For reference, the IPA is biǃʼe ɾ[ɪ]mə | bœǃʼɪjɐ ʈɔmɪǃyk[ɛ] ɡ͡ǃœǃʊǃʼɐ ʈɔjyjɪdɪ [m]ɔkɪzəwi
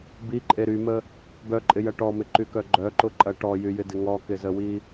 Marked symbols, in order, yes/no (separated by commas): no, no, no